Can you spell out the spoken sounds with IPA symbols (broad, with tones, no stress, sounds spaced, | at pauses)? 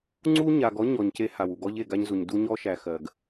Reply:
ŋ͡ǀ u˥ ɲ a˨ ɡ ɔ˥ ɲ ɔ˨ ɲ c e˥ h a˩ w u˩ ɡ ɔ˥ ʎ e˨ ɡ a˦ ɲ z u˩ ɲ d u˦ ɲ ɔ˦ ʃ æ˨ x ɜ˩ ɡ